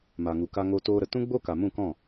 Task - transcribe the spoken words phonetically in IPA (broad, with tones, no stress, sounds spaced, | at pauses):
m a˨ ŋ u˨ k a˧ ŋ o˧ t oː˧ ɾ ə˨ t ũ˦ ɡ͡b o˦ k a˨ m ũ˦˨ k ɔ̃˦˨